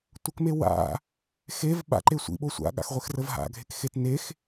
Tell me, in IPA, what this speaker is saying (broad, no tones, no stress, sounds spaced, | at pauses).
tʷ ə k m e w a̰ | x e v ɓ a̰ ǃ e sʷ ḭ ɓ o sʷ a̰ ɠ a̰ x ʁʷ e x r ə v ɦ a̰ ɡʱ e k x e t n e x